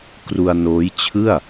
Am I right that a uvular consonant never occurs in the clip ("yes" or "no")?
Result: yes